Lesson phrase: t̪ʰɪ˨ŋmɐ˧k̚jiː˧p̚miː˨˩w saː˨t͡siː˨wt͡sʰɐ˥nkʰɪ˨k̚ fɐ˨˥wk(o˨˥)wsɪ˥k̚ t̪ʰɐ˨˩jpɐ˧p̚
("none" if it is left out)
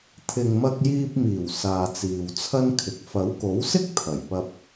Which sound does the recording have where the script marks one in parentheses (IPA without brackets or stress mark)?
o˨˥